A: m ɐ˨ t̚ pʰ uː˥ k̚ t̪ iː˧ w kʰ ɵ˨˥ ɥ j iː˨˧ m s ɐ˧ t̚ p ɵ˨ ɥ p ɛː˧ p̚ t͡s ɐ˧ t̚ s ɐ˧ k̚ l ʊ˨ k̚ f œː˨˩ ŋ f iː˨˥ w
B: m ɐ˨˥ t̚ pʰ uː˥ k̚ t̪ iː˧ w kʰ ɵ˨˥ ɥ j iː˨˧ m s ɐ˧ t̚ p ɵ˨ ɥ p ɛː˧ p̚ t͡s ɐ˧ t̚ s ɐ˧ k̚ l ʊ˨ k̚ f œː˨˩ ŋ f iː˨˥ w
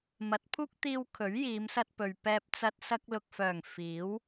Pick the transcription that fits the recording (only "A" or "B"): B